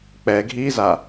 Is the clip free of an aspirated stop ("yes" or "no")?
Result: yes